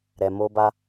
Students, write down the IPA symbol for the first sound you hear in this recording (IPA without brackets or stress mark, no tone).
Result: ɾ